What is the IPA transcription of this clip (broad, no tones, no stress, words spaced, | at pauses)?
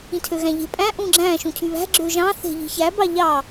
ĩtʰøɣæ̃ʎe̤ pʼæ̃ ʔũɡ͡ǁæ̃ ʃũcʰyβæ̤ ɡ͡ǁøʒɑ̃ θe̤ʎi̤çæ bɑʎɑ